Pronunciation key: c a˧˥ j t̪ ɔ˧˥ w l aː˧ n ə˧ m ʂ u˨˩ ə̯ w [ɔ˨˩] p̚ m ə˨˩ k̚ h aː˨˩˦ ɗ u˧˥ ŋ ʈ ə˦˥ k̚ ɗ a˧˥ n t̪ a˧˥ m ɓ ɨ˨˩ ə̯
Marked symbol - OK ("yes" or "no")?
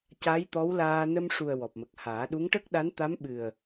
yes